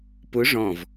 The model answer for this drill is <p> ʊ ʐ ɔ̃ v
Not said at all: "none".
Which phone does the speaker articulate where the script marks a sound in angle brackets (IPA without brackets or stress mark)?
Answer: p